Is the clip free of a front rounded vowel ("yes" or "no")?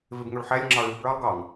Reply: no